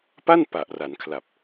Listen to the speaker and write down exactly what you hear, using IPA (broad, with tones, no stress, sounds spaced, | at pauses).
p a˥˩ n p a˨˩ ʔ r a˩˦ n kʰ l a˨˩ p̚